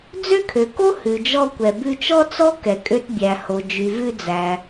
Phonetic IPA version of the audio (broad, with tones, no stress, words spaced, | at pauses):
d͡zø˥kʰø˩ko˥ hʉ˩d͡ʒɔ˧ kʷɛ˩ bʉ˧t͡ʃɔ˥t͡sɔ˥ kɛ˩kʼø˧tbʲæ˩ho˩ d͡ʒy˩vʉ˧d͡zæ˩